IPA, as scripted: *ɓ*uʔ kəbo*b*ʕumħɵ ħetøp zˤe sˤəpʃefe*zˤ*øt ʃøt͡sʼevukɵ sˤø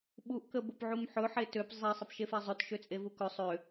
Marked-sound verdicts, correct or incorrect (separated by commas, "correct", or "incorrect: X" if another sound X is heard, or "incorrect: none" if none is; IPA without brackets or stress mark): correct, incorrect: p, correct